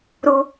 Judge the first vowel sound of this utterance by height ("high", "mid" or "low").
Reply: high